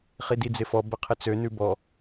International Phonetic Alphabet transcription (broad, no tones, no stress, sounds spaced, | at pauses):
χ i d i d͡z ɪ f ɔ b ə qʰ ɪ t͡s ø n ʉ b ɔ